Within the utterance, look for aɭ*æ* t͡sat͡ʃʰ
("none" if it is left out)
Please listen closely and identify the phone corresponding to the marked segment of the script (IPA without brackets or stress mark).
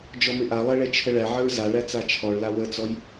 æ